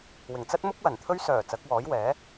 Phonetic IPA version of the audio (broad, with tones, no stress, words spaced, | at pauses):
wɪ˨˩ŋt͡sɐ˥t̚mʊ˥k̚wɐ˨˩n t̪ʰɵ˧ɥsœː˨˩ t͡sɐ˨˥k̚wɔː˨˥jwɛː˨˥